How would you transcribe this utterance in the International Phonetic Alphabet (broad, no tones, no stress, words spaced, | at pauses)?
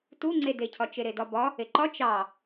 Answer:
tu ŋ͡ǀedecʰɒ t͡ʃeɾedɒbɒ | eǃɒ t͡ʃɑ